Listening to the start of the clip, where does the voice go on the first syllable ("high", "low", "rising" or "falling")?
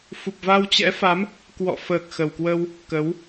low